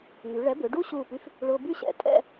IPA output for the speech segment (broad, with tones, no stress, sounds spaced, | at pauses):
ŋ y˩˧ ɭ ɛ˨˥ b ʏ˩˧ ɖ u˥˧ ɕ uː˧˩ p y˧ f | ɭ ʊː˧ b y˥˧ ɕ ɛ̰˧˩ tʼ ɛ̰˥˧